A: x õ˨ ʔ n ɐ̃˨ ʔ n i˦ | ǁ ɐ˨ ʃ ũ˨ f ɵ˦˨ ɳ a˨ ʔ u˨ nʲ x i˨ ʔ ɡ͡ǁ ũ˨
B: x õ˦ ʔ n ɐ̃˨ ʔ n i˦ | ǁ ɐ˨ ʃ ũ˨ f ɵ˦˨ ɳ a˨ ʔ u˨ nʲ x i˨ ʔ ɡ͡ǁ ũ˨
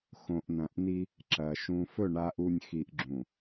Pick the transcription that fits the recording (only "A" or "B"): A